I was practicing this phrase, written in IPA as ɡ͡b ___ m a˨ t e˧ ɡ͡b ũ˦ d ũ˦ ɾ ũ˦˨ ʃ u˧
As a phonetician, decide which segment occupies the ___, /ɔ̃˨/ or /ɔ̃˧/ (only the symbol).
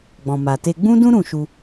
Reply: ɔ̃˨